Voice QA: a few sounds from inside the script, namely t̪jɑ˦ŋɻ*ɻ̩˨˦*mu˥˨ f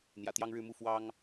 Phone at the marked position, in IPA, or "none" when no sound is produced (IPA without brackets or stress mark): ɻ̩˥˨